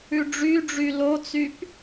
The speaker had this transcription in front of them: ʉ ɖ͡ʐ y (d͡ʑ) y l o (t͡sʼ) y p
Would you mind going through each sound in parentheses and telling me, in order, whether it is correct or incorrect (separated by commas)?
incorrect, incorrect